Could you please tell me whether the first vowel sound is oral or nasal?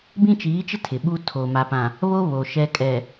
nasal